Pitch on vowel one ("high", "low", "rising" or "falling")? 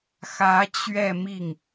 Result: rising